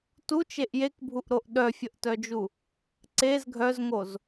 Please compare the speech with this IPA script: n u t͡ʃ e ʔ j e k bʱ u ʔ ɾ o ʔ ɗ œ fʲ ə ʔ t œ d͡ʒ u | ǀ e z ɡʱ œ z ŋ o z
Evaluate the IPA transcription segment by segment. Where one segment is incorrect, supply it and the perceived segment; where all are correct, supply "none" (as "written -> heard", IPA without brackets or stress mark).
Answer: n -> t